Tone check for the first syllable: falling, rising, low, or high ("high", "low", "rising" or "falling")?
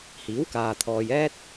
rising